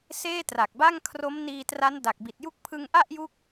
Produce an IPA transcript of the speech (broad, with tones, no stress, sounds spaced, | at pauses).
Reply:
s eː˥˩ t r a˨˩ k̚ b a˥˩ ŋ kʰ r o˦˥ m n iː˧ t r a˦˥ n d a˨˩ k̚ b i˨˩ t̚ j u˥˩ k̚ pʰ ɯ˧ ŋ ʔ a˥˩ ʔ j u˦˥ k̚